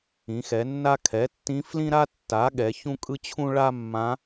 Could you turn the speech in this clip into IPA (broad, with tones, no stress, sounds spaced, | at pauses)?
ĩ˩˥ x ɛ˩˥ nː a˥ kʰ ɛ˩˥ tː ĩ˧˥ f l ĩ˥ ɾ a˥ tː a˩˥ ɠ ɛ˩˥ ç ũ˥ kʼ ɯ˥ t͡ɕʰ ũ˥ ɭ a˥ mː ã˧˥